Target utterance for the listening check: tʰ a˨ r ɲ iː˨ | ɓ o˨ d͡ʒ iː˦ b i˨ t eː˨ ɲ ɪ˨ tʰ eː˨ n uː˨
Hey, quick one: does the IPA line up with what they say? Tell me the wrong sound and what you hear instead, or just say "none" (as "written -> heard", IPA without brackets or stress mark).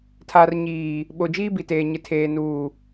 none